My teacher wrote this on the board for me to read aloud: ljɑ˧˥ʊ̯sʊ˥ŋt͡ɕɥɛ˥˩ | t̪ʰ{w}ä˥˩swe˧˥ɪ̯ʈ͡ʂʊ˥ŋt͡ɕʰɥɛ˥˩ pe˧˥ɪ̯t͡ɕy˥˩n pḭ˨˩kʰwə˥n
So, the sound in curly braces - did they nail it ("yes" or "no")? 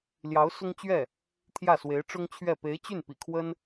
no